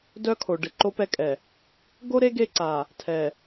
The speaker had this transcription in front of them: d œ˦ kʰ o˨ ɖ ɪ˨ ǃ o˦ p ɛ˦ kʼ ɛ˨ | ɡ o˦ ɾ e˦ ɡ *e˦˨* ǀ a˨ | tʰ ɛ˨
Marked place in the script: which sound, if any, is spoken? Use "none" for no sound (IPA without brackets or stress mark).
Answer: e˦˨